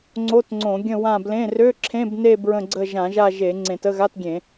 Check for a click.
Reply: present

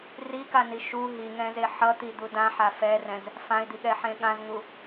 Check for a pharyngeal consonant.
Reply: present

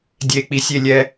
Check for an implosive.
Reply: absent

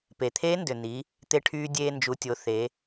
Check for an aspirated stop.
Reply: present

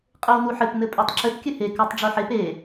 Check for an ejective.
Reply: present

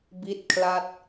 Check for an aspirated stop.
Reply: present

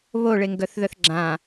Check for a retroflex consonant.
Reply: present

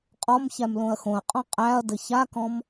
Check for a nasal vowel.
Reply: present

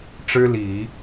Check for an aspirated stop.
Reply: absent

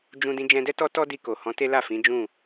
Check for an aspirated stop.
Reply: absent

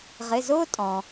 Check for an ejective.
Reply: present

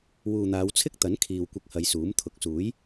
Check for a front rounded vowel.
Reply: absent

